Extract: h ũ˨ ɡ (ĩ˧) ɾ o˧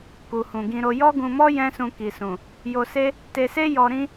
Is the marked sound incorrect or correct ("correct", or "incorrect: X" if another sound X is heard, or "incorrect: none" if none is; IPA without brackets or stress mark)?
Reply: correct